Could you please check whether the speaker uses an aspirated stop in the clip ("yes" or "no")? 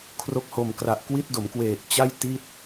yes